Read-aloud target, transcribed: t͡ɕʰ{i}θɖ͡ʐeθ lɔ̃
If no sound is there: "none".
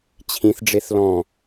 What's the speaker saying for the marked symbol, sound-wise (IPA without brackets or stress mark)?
ĩ